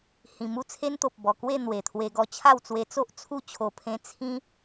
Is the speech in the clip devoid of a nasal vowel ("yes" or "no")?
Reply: no